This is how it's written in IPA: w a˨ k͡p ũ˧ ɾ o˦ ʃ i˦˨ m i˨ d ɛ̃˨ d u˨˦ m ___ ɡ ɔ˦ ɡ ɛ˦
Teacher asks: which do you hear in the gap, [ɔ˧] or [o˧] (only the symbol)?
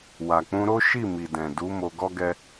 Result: o˧